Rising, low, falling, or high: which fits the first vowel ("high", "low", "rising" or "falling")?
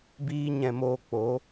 high